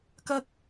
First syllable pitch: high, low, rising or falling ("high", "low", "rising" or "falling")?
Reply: high